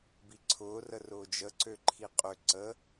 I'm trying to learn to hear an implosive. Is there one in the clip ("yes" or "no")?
no